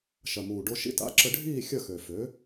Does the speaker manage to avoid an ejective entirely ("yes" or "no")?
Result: yes